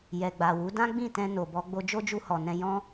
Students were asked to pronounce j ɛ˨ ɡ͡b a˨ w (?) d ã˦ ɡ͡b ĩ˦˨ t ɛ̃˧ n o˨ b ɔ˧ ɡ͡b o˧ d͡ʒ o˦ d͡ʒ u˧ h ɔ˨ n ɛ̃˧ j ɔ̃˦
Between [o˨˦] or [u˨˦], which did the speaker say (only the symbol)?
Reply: u˨˦